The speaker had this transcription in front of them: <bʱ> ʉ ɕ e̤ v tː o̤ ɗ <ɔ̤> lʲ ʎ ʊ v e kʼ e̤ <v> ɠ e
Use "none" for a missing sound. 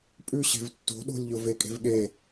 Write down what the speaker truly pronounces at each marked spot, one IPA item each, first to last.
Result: pʼ, o̤, v

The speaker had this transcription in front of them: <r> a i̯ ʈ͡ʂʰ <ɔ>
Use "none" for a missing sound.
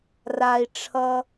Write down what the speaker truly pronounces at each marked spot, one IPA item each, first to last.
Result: r, ʌ

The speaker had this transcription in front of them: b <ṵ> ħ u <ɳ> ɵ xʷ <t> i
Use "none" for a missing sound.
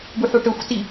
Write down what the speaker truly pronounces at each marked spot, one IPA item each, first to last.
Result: u, ʈ, t

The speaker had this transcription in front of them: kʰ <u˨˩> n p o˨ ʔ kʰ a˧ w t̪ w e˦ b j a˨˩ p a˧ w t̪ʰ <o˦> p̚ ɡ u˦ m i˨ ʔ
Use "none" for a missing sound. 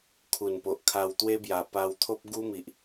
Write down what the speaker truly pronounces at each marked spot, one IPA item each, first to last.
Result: u˨˩, o˦

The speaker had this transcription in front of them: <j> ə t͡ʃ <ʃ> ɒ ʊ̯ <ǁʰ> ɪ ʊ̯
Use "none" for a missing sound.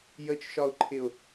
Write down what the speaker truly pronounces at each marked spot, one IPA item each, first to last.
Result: j, ʃ, ǃʰ

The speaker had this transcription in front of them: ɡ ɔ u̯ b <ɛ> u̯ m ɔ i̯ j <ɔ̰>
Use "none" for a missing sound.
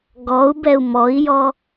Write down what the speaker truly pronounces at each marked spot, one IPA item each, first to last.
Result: ɛ, ɔ

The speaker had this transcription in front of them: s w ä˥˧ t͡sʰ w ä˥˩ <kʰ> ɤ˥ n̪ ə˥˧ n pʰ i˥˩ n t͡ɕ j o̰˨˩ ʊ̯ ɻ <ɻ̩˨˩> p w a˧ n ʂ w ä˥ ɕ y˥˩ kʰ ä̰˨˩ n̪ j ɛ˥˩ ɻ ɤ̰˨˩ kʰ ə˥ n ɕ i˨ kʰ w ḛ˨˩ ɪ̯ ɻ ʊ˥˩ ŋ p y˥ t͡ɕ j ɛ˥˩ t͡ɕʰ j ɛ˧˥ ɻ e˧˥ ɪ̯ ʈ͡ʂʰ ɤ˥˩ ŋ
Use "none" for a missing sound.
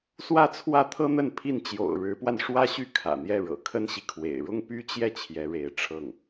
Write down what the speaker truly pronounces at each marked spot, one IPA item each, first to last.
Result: t̪ʰ, ɻ̩˧˥

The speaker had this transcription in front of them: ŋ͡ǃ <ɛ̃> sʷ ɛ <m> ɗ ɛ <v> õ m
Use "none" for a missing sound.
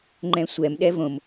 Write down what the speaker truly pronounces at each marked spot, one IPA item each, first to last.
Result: ɛ̃, m, v

